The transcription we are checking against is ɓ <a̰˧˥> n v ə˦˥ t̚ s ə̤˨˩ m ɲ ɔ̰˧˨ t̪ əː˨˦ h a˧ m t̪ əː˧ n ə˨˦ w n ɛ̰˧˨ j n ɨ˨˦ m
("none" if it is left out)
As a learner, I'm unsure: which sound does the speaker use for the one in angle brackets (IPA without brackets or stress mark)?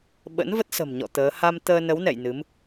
ə̰˧˥